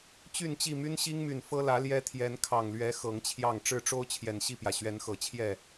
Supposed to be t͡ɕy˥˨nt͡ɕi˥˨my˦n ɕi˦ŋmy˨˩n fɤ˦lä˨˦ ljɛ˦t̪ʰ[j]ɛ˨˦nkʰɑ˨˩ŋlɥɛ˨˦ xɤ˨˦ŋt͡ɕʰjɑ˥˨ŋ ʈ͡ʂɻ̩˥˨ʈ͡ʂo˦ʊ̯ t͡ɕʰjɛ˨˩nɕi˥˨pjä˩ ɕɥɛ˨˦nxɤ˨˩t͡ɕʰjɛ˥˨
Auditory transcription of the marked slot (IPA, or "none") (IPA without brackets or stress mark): j